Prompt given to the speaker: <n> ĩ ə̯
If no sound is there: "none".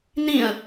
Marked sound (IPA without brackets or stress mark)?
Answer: n